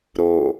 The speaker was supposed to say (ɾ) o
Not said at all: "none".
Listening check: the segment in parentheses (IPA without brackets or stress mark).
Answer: ɾ